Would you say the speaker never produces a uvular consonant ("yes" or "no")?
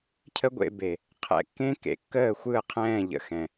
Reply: no